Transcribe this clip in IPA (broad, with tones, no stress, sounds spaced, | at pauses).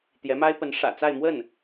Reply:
t̪ j ɛ˧˥ m a˥ ɪ̯ p ə˧˥ n ʂ ä̰˨˩ t͡s a˥˧ ɪ̯ m w ə˥˩ n